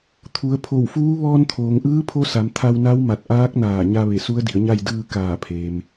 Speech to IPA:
t̪ʰ u˩˧ ə̯ pʰ o˧˩ w f uː˧˥ ʋ ɔː˧ n t̪ʰ oː˩ ŋ ʔ ɯː˧˥ pʰ o˧ s a˩˧ m t̪ʰ a˧ w n a˧˥ w m a˧˩ t̚ ʔ aː˧˥ k̚ n aː˧˩ ɲ a˧ ʋ e˧˩ s u˧˥ ə̯ d i˩˧ ə̯ ɲ a˥˨ j d ɯː˧ k aː˧˩ pʰ eː˩ m

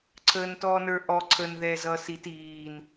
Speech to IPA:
ǀʰ əː n t ɔː n ə˞ ʔ ɔ ǀʰ ə n ð ɛː z ʌː s i t iː n

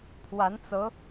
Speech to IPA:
pʰ w a˧˥ n t͡s ɤ˧˥

